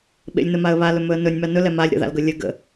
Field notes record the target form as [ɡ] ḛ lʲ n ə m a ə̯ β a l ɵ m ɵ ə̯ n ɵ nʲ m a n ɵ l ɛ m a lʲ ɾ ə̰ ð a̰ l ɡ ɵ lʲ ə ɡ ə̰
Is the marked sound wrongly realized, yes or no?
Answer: yes